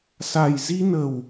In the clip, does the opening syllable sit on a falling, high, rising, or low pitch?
low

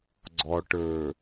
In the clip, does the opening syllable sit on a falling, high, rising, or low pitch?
low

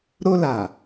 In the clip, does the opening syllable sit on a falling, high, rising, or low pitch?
high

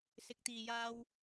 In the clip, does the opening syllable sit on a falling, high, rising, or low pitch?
low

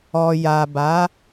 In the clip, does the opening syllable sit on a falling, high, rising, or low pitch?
low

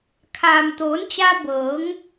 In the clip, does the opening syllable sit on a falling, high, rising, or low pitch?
low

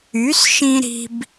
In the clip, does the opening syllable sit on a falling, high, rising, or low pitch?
rising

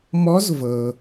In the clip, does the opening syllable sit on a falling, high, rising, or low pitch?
rising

